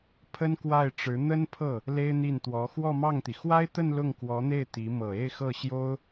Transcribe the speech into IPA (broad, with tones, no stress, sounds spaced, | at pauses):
pʰ ə˥ n k w a˥˩ ɪ̯ ʈ͡ʂ ɻ̩˧˥ n̪ ə˥ n pʰ ɤ˥˩ | l e˥ ɪ̯ n̪ i˥˩ n t̪ w ɔ˧˥ x w ɔ˥˧ m ɑ˥˩ ŋ t̪ i˩ x w a˥ ɪ̯ t̪ ə˥˧ n l ʊ˥˩ ŋ k w ɔ˧˥ n̪ e˥˩ ɪ̯ t̪ i˧˥ m ɤ˨˩ e˥˧ ɪ̯ x ɤ˥˩ ɕ j o˥ ʊ̯